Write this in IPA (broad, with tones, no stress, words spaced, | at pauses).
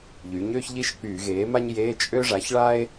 ʎy˩˥ɲø˥çʎi˥ʃ k͡pyː˧˩˧ɣeː˩˥ma˥ɲjeː˧˥˧ t͡ʃʼø˥ʐa˩˥ç ɭa˥e̯